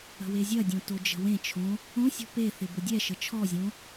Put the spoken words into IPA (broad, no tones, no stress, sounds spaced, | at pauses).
ə̤ w e zʲ ɐ dʲ õ t o d͡ʒ ə̤ w ẽ t͡ʃʰ õ | õ sʲ ɔ̤ p e θ ɪ b ʊ dʲ ɛ ʃ ə t͡ʃʰ ɔ zʲ õ